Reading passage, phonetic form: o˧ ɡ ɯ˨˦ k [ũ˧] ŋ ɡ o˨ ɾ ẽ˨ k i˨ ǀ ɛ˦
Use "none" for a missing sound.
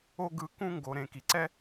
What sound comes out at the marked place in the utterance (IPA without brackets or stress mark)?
ũ˧